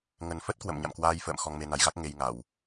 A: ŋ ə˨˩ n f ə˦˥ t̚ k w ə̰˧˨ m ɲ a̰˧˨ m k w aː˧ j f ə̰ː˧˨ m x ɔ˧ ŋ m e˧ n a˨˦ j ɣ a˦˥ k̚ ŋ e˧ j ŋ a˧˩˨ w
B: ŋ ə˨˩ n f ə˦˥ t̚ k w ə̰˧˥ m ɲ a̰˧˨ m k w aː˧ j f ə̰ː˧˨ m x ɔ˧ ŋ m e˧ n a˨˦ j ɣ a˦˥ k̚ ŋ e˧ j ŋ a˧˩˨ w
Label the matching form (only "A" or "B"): A